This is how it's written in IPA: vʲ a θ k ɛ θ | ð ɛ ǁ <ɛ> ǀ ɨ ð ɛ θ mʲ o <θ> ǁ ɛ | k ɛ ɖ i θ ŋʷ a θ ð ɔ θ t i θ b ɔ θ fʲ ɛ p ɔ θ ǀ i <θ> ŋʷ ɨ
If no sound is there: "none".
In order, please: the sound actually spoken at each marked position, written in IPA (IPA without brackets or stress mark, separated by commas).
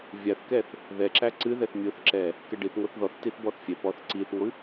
æ, θ, θ